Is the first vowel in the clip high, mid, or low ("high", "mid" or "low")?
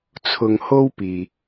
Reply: high